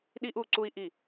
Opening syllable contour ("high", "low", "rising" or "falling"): high